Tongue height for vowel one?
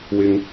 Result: high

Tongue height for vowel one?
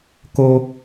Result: mid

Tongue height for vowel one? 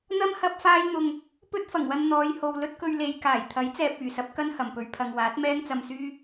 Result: low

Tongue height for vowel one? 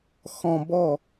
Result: mid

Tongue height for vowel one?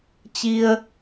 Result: high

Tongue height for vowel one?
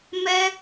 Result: mid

